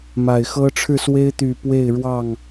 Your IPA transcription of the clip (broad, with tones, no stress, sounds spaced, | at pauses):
m a˨˩ ɪ̯ x ɤ˦ ʈ͡ʂʰ ɻ̩˥˨ s w e˦ ɪ̯ t̪ y˨˩ p w e˥˨ ɪ̯ ɻ w ɑ˥˨ ŋ